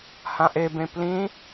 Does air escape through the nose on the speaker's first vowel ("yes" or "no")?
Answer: yes